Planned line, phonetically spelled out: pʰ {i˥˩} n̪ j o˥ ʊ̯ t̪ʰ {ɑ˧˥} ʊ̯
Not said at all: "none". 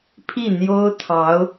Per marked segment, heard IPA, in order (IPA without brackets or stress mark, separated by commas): i˥˩, ɑ˧˥